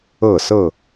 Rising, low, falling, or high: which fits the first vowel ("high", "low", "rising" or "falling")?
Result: falling